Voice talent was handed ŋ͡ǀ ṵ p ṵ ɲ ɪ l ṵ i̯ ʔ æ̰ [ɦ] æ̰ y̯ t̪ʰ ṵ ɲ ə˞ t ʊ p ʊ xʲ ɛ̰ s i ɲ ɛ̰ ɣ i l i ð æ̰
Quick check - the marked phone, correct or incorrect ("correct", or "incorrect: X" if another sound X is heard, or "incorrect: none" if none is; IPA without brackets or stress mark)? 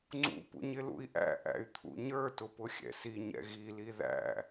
incorrect: ʔ